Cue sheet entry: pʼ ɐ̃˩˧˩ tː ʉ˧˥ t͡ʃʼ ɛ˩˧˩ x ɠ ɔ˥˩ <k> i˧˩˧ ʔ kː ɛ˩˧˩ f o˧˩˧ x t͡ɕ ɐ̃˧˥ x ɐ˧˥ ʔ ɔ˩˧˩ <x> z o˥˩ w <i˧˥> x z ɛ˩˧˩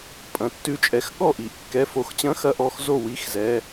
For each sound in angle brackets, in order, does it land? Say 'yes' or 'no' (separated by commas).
no, yes, yes